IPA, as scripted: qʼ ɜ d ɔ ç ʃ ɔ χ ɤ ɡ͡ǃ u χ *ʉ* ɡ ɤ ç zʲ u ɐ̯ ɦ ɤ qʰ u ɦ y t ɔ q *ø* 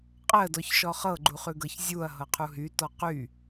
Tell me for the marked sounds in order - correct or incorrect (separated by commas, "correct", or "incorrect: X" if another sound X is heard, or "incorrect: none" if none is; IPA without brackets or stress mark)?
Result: correct, incorrect: y